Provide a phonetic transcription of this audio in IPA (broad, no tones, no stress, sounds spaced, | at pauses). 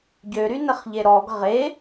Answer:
ɟ ø ɾ y n ə χ ʎ e ɾ ɔ ɡ ʁ e